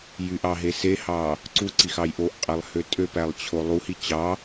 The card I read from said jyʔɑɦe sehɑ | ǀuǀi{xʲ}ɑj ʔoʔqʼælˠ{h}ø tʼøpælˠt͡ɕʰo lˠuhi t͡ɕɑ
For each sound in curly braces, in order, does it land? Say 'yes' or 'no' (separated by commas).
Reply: no, yes